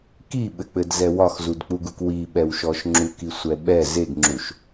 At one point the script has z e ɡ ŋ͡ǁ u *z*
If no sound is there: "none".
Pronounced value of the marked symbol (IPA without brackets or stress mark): ʃ